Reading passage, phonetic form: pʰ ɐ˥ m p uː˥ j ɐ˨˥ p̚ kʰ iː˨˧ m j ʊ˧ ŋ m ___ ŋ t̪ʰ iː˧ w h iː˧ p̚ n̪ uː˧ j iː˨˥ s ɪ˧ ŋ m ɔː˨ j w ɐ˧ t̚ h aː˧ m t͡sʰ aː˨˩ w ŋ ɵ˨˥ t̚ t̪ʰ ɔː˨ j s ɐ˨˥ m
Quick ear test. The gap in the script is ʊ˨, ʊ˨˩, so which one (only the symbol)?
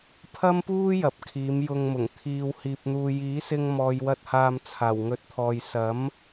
ʊ˨˩